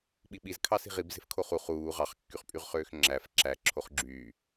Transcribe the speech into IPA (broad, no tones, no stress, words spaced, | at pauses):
ɓiɓiz kʰɑsi̤ʁib ze̤fkʰoχu χuː ʁɑχkːyχpʼyʁχøːx ŋ͡ǁæf ǁæ ǁʰoχɡ͡ǁyː